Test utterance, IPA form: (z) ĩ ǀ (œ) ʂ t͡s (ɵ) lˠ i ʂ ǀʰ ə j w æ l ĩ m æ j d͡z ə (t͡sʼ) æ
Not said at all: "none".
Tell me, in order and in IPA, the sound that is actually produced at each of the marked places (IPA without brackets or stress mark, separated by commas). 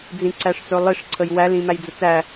d͡z, æ, ɵ, t͡s